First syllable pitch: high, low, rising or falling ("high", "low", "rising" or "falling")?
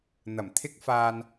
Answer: low